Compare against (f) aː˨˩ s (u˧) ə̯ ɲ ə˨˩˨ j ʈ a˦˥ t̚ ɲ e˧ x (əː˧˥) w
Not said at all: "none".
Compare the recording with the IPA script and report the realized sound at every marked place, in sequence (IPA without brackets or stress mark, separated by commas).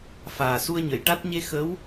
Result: f, u˧, ə˧˥